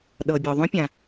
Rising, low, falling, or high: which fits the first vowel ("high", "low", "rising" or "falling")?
low